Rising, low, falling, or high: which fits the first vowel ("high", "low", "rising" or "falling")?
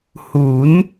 rising